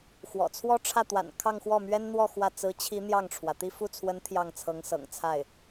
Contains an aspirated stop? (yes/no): yes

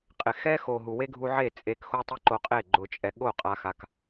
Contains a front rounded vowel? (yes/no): no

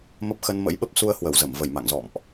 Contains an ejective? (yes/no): no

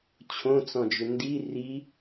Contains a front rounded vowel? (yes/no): yes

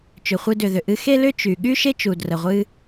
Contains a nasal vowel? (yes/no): no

